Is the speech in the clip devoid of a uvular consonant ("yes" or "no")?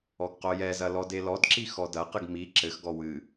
no